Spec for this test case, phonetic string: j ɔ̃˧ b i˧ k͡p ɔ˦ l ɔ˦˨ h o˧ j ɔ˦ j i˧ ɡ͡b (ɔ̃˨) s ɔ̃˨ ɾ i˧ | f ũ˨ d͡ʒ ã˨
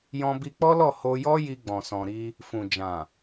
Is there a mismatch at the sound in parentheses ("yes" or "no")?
no